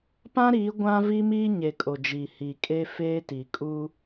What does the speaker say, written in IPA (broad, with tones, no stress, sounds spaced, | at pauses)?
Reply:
p ã˦ ɾ iː˨˦ ɡʷ ã˦ v i˦ m iː˦ ɲ e˨ kʼ o˨ d͡ʒ iː˨ h iː˨ kʼ e˦ f eː˦ t i˨ kʼ u˦